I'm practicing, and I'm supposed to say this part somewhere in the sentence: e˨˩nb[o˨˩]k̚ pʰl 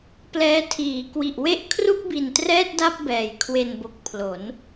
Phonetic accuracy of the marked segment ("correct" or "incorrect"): correct